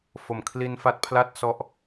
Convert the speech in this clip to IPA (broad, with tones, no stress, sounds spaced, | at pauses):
f o˨˩ m kʰ l i˧ n f a˦˥ t̚ pʰ l a˥˩ t̚ s ɔ˦˥ ʔ